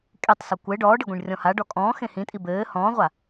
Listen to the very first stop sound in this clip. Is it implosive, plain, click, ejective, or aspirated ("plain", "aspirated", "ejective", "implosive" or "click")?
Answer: ejective